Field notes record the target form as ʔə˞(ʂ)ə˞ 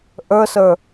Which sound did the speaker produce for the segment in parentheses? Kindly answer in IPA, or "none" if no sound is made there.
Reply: s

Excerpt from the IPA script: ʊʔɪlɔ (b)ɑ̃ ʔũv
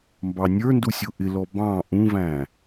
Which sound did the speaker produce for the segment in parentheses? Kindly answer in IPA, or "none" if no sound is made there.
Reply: b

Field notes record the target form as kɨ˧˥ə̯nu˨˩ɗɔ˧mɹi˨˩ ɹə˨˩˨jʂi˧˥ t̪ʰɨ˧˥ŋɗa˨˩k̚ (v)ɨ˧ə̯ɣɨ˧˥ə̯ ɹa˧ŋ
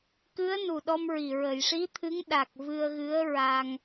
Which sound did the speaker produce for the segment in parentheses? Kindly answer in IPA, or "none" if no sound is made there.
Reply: v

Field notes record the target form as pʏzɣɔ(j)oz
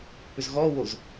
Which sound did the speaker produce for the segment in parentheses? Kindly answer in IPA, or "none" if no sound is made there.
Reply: w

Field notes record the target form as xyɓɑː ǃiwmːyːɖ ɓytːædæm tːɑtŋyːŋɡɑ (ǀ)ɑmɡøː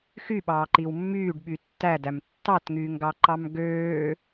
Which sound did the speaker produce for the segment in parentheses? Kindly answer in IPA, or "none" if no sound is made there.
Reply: ǃ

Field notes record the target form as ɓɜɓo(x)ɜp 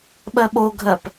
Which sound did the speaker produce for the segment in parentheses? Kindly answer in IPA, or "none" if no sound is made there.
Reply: ɡʱ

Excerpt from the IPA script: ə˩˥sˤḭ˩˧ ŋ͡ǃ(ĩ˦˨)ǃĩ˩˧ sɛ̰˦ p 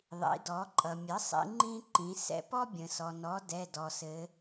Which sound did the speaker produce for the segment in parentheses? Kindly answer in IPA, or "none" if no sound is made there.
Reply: ĩ˦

